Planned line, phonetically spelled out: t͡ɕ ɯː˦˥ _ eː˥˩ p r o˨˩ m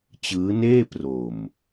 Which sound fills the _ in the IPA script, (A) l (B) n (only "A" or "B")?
B